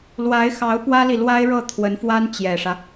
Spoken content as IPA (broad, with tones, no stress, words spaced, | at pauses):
lwa˧˥ɪ̯xɑ˧˥ʊ̯ pwä˥li˨lwa˥ɪ̯ɻɤ˥˩ t̪ʰwə˧˥nfwa˥n t͡ɕjɛ˨˩ʂä˦